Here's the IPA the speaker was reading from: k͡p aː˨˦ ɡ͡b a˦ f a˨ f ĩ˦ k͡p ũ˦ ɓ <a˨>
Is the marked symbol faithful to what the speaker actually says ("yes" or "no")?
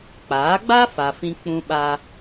no